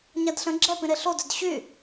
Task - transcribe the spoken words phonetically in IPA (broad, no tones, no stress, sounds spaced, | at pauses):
ɲ a d ɬ ə̃ ɡ͡ǁ ɛ p ĩ ɾ e ɬ o d ø d ɕ y